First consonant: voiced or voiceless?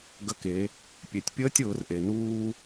voiced